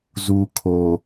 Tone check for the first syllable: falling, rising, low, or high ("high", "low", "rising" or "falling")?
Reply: low